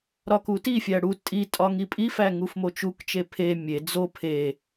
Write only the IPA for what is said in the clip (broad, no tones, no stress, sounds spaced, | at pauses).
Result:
ɾ ɒ k u t i fʲ æ ɽ u tʼ i tʼ ɒ ŋ i pʼ i f æ ŋ u f m o t͡ʃ u k t͡ʃ e pʰ e mʲ e d͡z o pʰ e